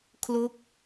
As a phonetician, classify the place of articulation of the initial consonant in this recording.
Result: velar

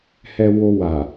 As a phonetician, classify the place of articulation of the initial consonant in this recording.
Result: glottal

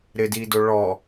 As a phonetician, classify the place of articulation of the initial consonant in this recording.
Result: alveolar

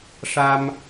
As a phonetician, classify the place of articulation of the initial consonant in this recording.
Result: retroflex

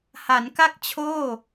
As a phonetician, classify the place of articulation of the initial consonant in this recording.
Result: glottal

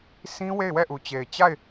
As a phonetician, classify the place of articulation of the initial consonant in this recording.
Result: alveolar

